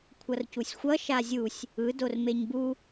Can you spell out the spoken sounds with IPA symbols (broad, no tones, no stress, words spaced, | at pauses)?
kʷʰʌrcusʲxʷʌ ʃazʲusʲ | ɯ dormeɲbu